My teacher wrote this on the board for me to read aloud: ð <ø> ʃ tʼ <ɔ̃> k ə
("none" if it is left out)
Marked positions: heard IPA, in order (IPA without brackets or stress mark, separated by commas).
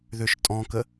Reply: ø, ɔ̃